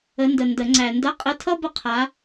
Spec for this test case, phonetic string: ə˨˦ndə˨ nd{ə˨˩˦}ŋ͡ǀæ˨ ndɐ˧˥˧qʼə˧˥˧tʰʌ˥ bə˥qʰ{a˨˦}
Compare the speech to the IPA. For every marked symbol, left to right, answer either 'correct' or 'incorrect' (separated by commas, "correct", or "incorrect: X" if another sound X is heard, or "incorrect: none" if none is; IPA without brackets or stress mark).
correct, correct